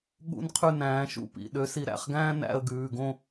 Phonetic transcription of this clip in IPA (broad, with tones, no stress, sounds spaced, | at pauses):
ɠ ṵ˥ n qʰ ʉ˥˧ n æ̃ː˨˦ ʃ ṵ˥˧ p ḭ˩˧˩ ɗ ø˨˦ s i˨˦ ɾ æ̰˩˧˩ χ ɡ æ̃ː˥ n æ̰˥˧ ə̯ ɡ ʉː˩˧˩ ɡ õ˥˧